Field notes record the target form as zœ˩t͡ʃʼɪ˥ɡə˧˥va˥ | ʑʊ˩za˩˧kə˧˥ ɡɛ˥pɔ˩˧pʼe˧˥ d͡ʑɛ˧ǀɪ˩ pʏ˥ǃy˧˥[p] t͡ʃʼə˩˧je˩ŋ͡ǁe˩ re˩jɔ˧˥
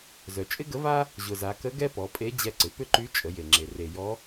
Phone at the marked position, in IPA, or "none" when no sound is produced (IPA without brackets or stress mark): none